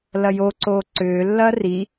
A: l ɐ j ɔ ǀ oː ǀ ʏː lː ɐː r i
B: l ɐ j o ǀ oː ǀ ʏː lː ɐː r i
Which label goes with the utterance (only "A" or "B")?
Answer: B